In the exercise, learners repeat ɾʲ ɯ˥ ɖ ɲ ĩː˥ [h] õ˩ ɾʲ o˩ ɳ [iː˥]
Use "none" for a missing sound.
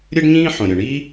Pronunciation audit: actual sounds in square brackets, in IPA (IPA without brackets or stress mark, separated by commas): ħ, iː˥